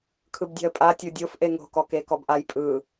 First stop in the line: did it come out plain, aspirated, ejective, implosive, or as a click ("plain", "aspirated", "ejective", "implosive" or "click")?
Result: aspirated